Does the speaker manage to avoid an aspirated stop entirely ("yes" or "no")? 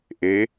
yes